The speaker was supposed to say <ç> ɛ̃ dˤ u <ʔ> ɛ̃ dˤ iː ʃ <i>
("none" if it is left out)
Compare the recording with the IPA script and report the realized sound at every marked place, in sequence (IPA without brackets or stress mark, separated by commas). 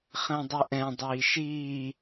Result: χ, ʔ, iː